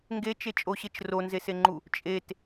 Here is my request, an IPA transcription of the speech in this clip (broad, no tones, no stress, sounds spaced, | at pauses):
ŋ ɡ e t͡ʃ e t͡ʃʼ o ɕ e t͡ʃ r o n z e s e ŋ͡ǃ u | t͡ʃʼ e t